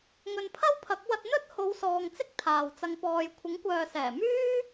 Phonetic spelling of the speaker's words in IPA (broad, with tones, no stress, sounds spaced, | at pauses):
ŋ ɵ˨ n pʰ ɐ˥ w pʰ ɐ˨˥ k̚ w ɐ˧ t̚ n̪ ɵ˥ t̚ h o˨˧ w s ɔː˨ ŋ t͡s ɪ˥ k̚ t̪ʰ aː˨ w t͡s ɐ˧ ŋ p ɔː˨ j kʷʰ ɪ˨˥ ŋ kʷ œː˨ s ɛː˨˩ m yː˥